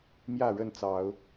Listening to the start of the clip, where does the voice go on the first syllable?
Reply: falling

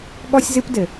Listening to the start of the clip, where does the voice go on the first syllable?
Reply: high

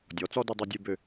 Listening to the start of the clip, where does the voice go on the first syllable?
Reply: rising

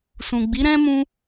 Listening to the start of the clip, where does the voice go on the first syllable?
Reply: low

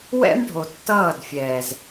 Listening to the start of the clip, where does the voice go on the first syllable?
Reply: high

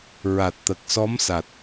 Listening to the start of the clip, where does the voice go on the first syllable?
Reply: low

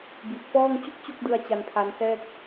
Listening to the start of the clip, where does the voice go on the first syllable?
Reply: low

